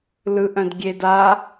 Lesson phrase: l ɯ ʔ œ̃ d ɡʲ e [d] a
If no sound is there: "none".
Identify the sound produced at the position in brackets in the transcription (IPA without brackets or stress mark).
d